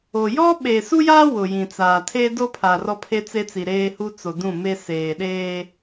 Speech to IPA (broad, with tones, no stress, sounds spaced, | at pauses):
o˨ j ɔ˦ ɓ e˨ s u˦ j aː˦ w ʊ˨ j ĩ˨ t͡s aː˨ tʰ eː˦ d o˦ pʰ a˨ r ɔ˦ pʰ e˦ t͡s e˦ t͡s i˨ ɾ eː˦ h u˦ t͡s o˨ d ũ˦˨ m e˦ s eː˨ ɗ eː˦